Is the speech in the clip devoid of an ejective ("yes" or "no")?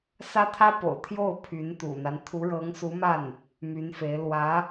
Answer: yes